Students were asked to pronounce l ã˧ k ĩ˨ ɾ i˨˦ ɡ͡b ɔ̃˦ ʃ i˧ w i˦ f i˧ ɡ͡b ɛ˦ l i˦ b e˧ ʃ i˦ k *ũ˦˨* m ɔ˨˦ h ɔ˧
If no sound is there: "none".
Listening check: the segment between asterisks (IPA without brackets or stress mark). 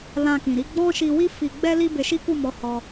u˦˨